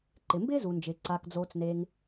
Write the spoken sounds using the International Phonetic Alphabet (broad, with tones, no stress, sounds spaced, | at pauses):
ǃ ɪ˩ m b ɪː˥ z u˩ n d͡ʒ ɪː˩ ǀ a˩ k d͡z oː˩ t͡s n e˩ ŋ